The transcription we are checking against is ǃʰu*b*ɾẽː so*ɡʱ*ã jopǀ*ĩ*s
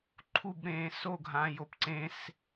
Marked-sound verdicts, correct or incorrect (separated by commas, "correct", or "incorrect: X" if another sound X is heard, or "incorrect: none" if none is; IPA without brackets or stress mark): correct, correct, incorrect: ẽ